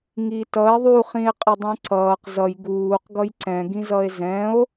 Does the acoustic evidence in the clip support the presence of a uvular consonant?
yes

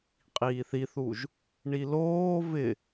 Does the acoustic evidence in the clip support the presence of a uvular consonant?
yes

